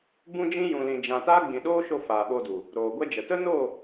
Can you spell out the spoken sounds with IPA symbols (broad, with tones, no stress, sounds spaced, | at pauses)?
b ũ˦ d͡ʒ ĩ˦ j ũ˨ l ĩ˨ d͡ʒ ã˨ t aː˦ ɡ͡b ĩ˨ ɗ oː˦ ʃ o˧ f aː˨ ɓ o˧ d u˨ | ɾ oː˨ ɡʷ ɛ˦ d͡ʒ ə˨ t ə˦ n o˦˨